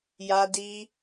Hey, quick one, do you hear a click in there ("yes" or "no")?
no